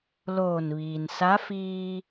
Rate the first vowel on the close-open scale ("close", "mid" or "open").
mid